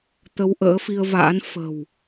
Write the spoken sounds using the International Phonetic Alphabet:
t̪ə˧wʔə̰ː˧˥ fi˧ə̯va̰ː˧˥nfə̤˨˩w

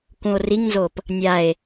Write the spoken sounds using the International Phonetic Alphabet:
kũo̯riŋnzop | nʲae̯

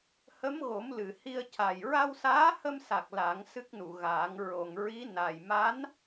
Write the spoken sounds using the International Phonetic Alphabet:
hə˧˥mɣo˨˩˦m lɨ˨˩ hi˧ə̯ca˨˩j ɹa˧wsaː˧˥hə˧msa˨˩k̚ la˨˩˦ŋ sɨ˦˥k̚nu˨˩˨ɣaː˨˩˦ŋ ɹo˨˩ŋɹi˧˥ na˨˩j ma˧˥n

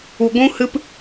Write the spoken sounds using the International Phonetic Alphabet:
u˧ɡʷũ˦hɨ˦p

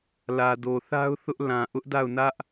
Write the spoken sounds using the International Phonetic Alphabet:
lä˨do˨θa˦ʊ̯ θʊ˦ʔ lã˨ʔʊ˦ʔda˦˨ʊ̯nä˦ʔ

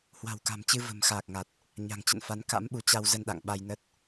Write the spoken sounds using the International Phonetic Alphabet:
hwa̤˨˩wka̤˨˩mt͡ɕɨ˧ və̤˨˩m xaː˨˩k̚ŋa˨˩t̚ | ɲa̤˨˩ŋt͡ɕə̰˧˨nfa˨˦n ka̰˧˥mɓu˨˦t͡ɕa˧w zə˧nɗa̰˧˨ŋ ɓa˧jnə˦˥t̚

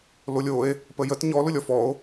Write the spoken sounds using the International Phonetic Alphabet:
lolʲoe̯ | pəjət ɲɔ lʊlʲɔfɔo̯

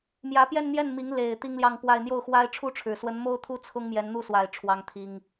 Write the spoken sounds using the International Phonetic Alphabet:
mjä˧˥pjɛ˥˧nn̪jɛ˥˩nmi˧˥ŋ le˨˩ɪ̯ t̪i˥ŋljɑ˥˧ŋpwa˥˧ɪ̯ n̪jo˥˩ʊ̯xwa˥ɪ̯ʈ͡ʂʰu˥ʈ͡ʂʰɻ̩˨˩ swə˧˥nmo˥ʊ̯t̪ʰu˥˩ t͡sʰʊ˥ŋmjɛ˧˥n n̪u˥˩swa˨˩ɪ̯ ʈ͡ʂʰwɑ˥ŋt̪ʰi˥ŋ

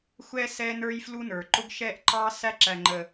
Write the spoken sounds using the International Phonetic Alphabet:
xʷɛ˦ sɛ˦nə˞˦jflu˦nə˞˨ ǃʊ˦ɡʃɛ˦ʔǃɑ˦ sæ˦ ǁæ˨ŋ͡ǃə˨

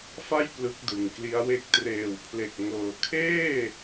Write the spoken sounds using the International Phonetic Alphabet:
fa˥˩j plɯ˦˥k̚dɯ˨˩ŋkli˦˥a̯we˥˩k̚ treː˨˩wpʰle˨˩k̚ ŋɤː˩˦kʰeː˥˩

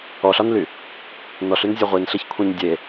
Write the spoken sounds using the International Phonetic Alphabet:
ɔɬɒnly | nɔɬynzʲɔ ʁʷinɬeçkʷʰĩɲ dʲe

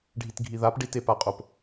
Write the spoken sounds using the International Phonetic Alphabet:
ɖʱitɡʱiðap ɖitepaqʼop

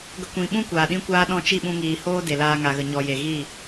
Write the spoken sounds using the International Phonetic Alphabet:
ɡə˧kʷĩ˨ɓũ˦ kʷaː˨ɗĩ˦kʷaː˦ ɗɔ̃˧t͡ʃi˦˨ɓũ˧ ŋiː˨hoː˦ de˨laː˧ŋa˨ɣə˨ ɲɔ˨ je˨ɣi˦˨

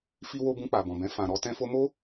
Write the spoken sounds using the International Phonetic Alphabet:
fi˧wo˧ bũ˧k͡pa˨bɔ̃˨bɛ̃˧ fã˨ɾɔ˧ tɛ̃˧fo˧mo˦

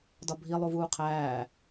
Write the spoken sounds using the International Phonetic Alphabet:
dɒbʱi lˠuvuːqʰæː

